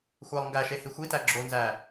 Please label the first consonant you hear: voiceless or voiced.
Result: voiceless